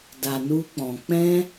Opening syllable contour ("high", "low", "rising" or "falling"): low